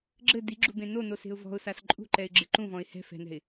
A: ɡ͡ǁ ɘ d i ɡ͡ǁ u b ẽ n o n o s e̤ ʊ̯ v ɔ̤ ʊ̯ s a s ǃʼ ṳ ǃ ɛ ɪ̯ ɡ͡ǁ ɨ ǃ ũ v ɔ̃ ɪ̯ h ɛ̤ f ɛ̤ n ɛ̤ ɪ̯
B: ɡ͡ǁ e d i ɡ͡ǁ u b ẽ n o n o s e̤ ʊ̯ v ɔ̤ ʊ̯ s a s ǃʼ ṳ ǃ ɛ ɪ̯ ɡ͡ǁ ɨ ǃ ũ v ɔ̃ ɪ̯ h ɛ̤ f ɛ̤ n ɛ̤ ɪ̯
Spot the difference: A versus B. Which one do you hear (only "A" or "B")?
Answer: A